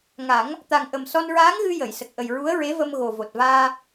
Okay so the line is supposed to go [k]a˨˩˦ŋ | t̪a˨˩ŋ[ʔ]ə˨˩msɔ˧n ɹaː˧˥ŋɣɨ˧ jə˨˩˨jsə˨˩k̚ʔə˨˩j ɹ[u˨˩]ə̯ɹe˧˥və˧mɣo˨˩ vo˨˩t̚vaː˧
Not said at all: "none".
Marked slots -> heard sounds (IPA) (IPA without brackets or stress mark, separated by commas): ŋ, ʔ, u˧˥